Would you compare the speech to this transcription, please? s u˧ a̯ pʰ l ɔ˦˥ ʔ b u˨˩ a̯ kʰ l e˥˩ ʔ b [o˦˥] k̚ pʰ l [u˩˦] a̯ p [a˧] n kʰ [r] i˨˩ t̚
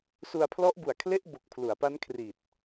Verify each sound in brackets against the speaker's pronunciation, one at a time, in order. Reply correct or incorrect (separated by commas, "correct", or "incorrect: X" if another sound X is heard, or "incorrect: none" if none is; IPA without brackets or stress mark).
incorrect: o˨˩, correct, incorrect: a˦˥, correct